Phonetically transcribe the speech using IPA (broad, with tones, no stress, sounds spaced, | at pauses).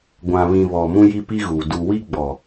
ɡʷ ã˨ β ĩ˨ β ɔ˨ m ũ˦ j i˦ p i˦ ɣ u˨ d u˨ w i˦ ɡ͡b ɔ˨